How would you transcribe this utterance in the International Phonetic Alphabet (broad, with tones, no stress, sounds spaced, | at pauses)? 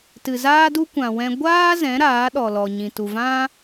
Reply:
t ɨ˨ z aː˦ d u˦ kʷ ã˨ w ɛ̃˧ ɡʷ aː˦ z ɛ̃˨˦ ɾ aː˨˦ ɗ ɔ˨ l ɔ˨ ɲ ĩ˨ t u˨ v ã˦